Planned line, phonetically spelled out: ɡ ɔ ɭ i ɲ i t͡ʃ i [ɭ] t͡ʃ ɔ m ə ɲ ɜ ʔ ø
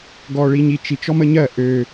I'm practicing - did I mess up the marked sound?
yes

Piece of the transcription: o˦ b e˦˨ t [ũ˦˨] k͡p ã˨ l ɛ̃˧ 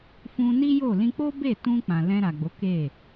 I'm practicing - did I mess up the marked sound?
yes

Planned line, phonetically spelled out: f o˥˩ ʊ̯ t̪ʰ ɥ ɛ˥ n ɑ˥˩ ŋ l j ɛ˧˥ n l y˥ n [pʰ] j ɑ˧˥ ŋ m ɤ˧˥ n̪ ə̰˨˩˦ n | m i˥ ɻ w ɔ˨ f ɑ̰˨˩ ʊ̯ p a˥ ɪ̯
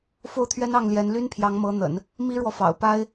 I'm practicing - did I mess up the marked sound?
no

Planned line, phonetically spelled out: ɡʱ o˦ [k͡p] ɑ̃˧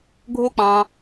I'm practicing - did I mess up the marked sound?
no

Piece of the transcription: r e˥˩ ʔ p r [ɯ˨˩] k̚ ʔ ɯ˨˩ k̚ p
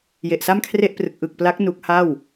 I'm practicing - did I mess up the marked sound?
no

